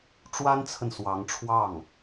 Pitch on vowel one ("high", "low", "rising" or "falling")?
high